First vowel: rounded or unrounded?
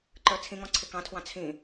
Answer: unrounded